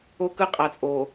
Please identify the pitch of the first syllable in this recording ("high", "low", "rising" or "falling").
high